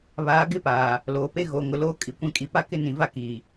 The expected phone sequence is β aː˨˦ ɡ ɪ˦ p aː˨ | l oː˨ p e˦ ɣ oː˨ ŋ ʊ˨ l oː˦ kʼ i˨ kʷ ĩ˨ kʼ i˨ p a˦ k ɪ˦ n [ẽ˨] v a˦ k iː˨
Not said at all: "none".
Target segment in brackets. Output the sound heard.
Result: ĩ˨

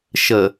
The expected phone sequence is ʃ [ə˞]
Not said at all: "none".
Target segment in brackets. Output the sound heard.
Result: ə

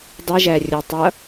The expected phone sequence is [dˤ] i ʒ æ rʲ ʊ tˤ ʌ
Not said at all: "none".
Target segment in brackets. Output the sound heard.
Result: dˤ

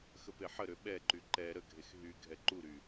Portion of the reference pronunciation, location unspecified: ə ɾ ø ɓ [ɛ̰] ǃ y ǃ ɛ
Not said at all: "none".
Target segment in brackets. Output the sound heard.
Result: ɛ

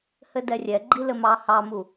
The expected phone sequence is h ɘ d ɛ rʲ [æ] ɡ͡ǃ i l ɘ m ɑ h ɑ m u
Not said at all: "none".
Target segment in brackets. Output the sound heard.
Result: ɛ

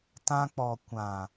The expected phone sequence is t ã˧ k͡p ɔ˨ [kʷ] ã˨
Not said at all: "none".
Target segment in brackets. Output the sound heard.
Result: kʷ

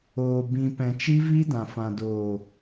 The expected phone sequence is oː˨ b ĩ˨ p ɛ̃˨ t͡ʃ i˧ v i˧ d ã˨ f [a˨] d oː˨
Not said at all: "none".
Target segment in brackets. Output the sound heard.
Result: ã˨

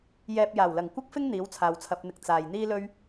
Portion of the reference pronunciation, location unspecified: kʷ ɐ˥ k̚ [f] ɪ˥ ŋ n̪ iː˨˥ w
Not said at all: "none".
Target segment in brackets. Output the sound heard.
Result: f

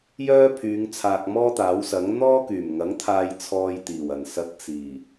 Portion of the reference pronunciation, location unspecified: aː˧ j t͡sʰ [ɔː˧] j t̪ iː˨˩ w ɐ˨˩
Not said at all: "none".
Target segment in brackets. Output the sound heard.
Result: ɔː˧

